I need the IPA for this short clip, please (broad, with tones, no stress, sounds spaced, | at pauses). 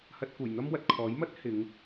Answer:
h ɐ˧ t̚ k uː˨˩ j n̪ ɐ˥ m w ɐ˨ t̚ kʰ ɔː˨˥ j m ɐ˥ t̚ h ɪ˨˧ ŋ